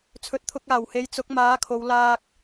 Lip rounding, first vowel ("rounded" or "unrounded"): rounded